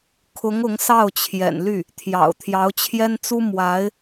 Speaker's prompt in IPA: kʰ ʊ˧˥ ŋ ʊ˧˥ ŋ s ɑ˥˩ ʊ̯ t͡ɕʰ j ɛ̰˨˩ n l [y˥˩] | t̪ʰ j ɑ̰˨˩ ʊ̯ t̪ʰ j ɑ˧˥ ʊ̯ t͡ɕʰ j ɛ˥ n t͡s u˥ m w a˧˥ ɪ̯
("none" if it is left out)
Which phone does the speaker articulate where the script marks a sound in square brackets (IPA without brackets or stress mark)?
y˥˩